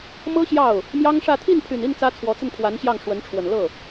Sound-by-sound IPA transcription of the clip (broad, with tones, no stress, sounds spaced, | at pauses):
m ɤ˥ ɕ j ɑ˥˩ ʊ̯ | m j ɑ˥ ŋ ʂ ä˥˧ t̪ʰ i˥˩ n pʰ y˨˩ n i˥˩ n t͡s ä˥ t͡sʰ w ɔ˧˥ t͡s ə˥˩ n pʰ w a˧˥ n ɕ j ɑ˥˩ ŋ ʂ w ə˧˥ n ʈ͡ʂʰ w ə˨˩ n l ɤ˥˩